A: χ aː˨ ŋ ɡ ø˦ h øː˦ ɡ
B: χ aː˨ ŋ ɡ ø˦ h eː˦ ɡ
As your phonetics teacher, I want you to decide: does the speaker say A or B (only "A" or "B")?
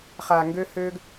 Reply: A